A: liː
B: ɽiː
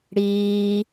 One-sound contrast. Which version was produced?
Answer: B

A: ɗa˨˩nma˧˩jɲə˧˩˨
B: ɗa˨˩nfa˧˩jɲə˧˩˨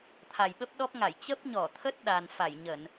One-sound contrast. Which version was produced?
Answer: B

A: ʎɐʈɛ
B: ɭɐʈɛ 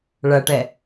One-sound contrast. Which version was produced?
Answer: B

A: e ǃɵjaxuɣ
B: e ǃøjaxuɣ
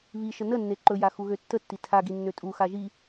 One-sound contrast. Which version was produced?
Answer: A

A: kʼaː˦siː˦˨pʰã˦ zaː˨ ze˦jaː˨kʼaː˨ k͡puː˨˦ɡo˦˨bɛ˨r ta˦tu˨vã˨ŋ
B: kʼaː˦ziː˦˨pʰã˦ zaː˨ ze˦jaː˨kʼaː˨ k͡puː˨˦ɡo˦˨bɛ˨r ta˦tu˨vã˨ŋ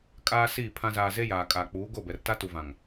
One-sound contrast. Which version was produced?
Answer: A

